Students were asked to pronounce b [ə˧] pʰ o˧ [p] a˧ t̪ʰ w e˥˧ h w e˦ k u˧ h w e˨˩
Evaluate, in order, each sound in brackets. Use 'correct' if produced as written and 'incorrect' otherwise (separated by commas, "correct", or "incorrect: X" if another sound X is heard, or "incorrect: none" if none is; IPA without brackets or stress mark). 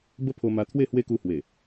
incorrect: ə˦, incorrect: m